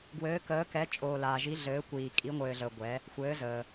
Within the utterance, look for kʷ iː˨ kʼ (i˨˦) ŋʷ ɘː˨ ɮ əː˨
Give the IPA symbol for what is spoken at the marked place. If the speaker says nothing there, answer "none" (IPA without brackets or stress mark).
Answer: i˨˦